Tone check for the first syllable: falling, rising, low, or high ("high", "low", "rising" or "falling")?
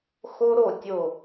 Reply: high